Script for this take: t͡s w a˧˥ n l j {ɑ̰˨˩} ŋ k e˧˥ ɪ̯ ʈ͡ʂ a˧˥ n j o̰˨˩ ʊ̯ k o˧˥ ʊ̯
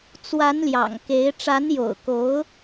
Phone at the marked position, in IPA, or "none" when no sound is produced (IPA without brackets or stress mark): ɑ̰˨˩